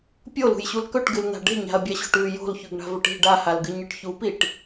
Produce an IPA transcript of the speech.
pʲolṳjɕul kɵʈɡɨln̪a̤ ɖe̤ɲa̤ɐ̯bʲaɕo̤ʈ ʉ jo̤lçʉɡɳa̤vɵʈ i̤ ɖahalɡɨɲɨʈ çupiʈ

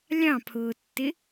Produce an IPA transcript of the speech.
lʲɑ̃pʰʊːtːɪ

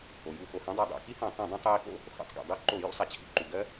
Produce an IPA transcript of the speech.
o˩ju˧˩˧ xo˩hã˦˥dˤɜ˧˩˧dˤa̰˧˩˧ ki˦˥hã˧˩˧ tˤĩ˧˩˧ dˤũ˧˩˧tˤji˧˩˧ko̰˦˥ | xo̰˧˩˧tˤɡa̰˩ dˤi˦˥ǃo˧˩˧ jṵ˦˥sˤa˩t͡ɕʰḭ˧˩˧ ǃu˩ɡɜ˦˥

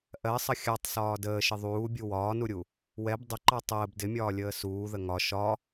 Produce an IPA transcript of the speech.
ʔɜsˤə xʲɑtˤsɒː dəːʃɪ ðˤuːbʲu wɒːnuɾʲu | wɛb dˤʊǃɑ tˤəːb dɪmʲɒːlʲəː suːðə ŋɒ ʃɒ

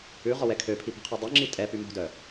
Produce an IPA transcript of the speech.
ʉʁɔwɛ kʰøpʰipɛ̤qʰœ dˤœŋ͡ǁi tʼɛpy mo̤dœ

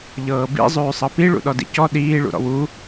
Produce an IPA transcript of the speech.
ʎɤːbḭ zˤʉːsˤɤpi ɭṵɗɔdḭcɔ ɗiː ɭṵɾɔ̰wu

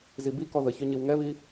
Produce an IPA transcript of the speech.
zibikɔ ðəçø ɲiwŋɛβi

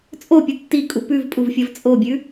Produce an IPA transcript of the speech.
t͡sʼopʲɨ tːikʼu pʉvpʼuvfʲɐv t͡sʼobʲʉ

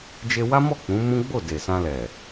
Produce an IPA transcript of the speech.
d͡ʒe˧wa˦mɔ˦˨ k͡pũ˨˦mũ˦ ɡ͡bo˦˨de˨sã˧ lɛ˨

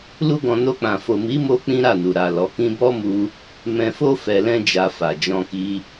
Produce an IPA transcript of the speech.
lu˦ɡɔ̃˧ no˧k͡pã˨ fo˨mi˨˦mo˧ k͡pĩ˦ɾa˦˨nu˨ ɾa˨ lɔ˨˦kĩ˦ bɔ˦mu˧ | mɛ̃˧fo˦ fɛ˧lɛ̃˦d͡ʒa˧ fa˨d͡ʒɔ̃˧ki˧

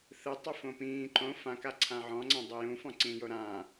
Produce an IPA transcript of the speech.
θɯtˤofõ pĩː ǃõ fãkaǀʰã ʕɔ̃ŋ͡ǀãdˤo jũfɔ̃ǀĩːjo ɾã

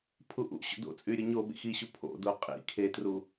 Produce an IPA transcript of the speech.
pʰuʔṵɕo̰ do̰t͡sʼy ɾʲoɲoɓḭ xiɕu pʰo̰do qʼḭ kʰetru

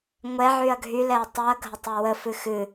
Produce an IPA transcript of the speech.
ŋʷɛʕyɐ̯ ɡʱylɛɐ̯ tˤɨɐ̯ɡʱətˤɛ wəfɨx ɨ

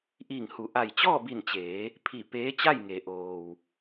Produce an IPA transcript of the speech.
ʔiː˧˩ŋhu˩˧ ʔa˧˩jt͡ɕɔː˥˨bi˧˩nt͡ɕeː˩˧ | pʰi˧˩ peː˧˥t͡ɕa˥˨jŋe˩˧ ʔoː˩w

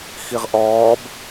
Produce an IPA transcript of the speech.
xiʁʔɔːb

